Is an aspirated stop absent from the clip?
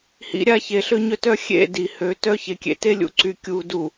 yes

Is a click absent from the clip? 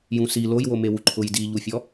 no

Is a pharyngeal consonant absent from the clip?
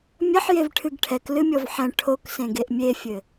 no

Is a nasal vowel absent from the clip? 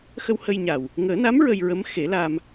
yes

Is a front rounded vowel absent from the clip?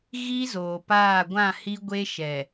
yes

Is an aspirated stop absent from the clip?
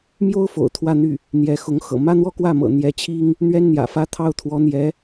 no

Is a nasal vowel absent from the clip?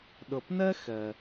yes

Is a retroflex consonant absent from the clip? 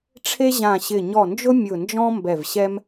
no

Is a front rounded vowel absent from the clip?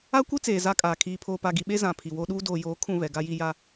yes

